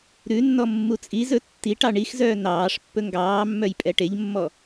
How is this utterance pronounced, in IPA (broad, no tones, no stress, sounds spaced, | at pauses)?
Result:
ɾ ʉ nː ɔ mː u t͡sʼ i z ɵ tː i ʈ ɑ ɳ i x z œː n ɑː ʂ pː ɵ ŋ ɡ ɑː mː œ j pʼ ɛ ʈ e ʎ mː ɔ